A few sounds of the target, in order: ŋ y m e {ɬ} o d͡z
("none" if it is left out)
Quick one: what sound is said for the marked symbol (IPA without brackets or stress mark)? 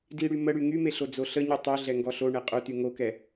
ɬ